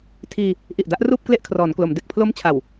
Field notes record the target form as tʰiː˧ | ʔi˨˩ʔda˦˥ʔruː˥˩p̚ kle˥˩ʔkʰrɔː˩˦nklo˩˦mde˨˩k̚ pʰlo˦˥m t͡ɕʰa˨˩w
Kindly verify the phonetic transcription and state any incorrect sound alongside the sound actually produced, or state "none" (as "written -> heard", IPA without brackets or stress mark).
none